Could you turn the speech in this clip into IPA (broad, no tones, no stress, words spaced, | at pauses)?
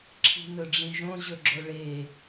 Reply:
ǁʰi̤nɵɖ͡ʐĩʒõ ʑɵɡ͡ǁoɭe